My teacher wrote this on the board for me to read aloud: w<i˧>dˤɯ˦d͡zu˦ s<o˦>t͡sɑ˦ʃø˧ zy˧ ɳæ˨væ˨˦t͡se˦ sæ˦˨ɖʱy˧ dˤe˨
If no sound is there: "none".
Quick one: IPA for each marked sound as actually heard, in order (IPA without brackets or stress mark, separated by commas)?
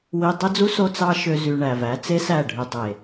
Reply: i˧, o˦